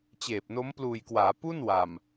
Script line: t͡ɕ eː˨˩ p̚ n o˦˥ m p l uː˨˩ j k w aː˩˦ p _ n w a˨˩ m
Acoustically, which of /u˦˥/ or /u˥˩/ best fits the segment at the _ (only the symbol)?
u˥˩